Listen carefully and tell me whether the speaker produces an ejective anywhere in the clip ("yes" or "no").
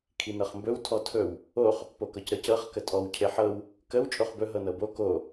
yes